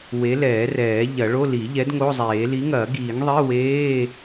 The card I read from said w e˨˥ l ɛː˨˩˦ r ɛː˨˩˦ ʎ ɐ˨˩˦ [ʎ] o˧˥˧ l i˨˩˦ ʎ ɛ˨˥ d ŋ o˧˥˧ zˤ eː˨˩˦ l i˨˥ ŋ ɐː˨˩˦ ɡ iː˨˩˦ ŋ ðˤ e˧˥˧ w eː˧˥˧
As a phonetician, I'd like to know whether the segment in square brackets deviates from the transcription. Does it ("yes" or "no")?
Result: yes